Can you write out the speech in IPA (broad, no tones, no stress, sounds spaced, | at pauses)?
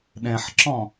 ɗ ɛ̃ ħ ǁ ɔ̃